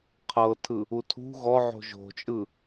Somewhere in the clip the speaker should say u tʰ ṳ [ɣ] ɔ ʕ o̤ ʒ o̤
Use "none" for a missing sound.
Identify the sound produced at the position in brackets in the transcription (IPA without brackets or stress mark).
ɣ